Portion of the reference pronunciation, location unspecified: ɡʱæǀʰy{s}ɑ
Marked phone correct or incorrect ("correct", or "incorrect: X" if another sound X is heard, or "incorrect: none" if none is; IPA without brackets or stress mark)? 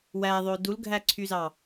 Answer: incorrect: z